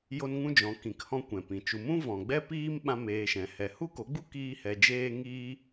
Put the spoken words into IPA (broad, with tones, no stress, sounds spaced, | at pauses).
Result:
j o˦ n ŋ ũ˦ d͡ʒ ɔ̃˨˦ k ĩ˨ k h ɔ̃˧ kʷ ɛ̃˨ p ĩ˨ t͡ʃ u˧ m ũ˦ v ɔ̃˨ ɡ͡b ɛ˦ p iː˦ m ɓ ã˦ m eː˧ ʃ ɛ̃˨˦ h ɛ˨ h u˦ k o˨˦ ɡ͡b u˦ k iː˦ h ɛ˧ d͡ʒ eː˦ ŋ iː˦